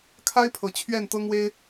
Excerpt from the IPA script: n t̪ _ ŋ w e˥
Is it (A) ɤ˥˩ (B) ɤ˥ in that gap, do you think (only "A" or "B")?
B